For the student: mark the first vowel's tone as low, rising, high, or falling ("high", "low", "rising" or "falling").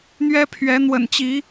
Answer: high